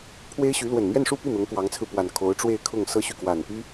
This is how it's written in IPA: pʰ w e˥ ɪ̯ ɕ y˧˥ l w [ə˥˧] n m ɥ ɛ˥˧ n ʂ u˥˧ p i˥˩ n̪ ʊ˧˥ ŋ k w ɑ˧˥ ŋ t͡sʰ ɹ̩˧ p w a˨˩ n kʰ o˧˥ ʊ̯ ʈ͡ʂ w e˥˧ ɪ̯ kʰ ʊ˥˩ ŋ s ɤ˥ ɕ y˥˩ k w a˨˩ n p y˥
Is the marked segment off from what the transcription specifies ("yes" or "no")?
yes